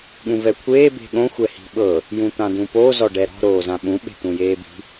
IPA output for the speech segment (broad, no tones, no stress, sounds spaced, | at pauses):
ɠ ũ v ɛ kʷʰ eː b e̤ ɠ õ xʷ ɛ h i̤ ɓ ɤ | j ũ t̪ ã d ũ p o z ɔ ɖ ɛ ɾ ɔ̤ ɾ oː z ã ɓ ũ ɓ e̤ t̪ ũ j eː b i̤